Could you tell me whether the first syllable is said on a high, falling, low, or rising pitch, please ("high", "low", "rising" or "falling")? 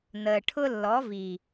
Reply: low